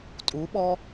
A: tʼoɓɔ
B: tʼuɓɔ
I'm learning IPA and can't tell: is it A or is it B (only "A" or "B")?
B